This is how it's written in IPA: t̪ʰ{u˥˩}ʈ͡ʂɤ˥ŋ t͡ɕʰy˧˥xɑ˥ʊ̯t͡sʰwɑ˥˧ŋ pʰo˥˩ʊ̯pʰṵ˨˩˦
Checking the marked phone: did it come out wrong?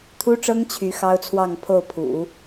yes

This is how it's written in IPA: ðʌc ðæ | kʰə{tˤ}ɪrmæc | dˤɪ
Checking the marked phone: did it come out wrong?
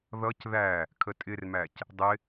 yes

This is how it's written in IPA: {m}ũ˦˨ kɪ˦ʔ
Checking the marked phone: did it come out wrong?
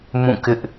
no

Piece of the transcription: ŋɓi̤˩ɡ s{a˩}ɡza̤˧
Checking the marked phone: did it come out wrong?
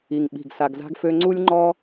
no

